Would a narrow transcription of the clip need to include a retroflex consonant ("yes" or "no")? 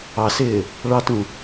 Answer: yes